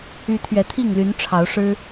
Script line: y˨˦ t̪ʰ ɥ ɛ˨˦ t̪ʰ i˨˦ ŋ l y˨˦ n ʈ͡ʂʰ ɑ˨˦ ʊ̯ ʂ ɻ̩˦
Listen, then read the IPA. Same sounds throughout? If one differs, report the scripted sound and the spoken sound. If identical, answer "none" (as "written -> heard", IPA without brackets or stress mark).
i˨˦ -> i˥˨